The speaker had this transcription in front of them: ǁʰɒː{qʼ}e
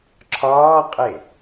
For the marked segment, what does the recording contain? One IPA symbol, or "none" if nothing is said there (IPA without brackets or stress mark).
qʼ